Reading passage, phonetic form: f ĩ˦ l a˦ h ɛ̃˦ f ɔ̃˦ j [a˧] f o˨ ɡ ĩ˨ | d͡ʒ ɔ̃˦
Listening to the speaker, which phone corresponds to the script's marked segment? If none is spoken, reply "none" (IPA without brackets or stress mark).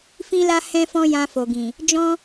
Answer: ã˧